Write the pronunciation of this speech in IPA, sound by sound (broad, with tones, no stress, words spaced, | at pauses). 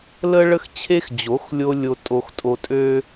lə˥ɭə˥xt͡ɕʰe˥x d͡ʑo˨˥x lʲo˥ lʲo˥tʼo˥xtʼo˥ tʼø˥